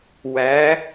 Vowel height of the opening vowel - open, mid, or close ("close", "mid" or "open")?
open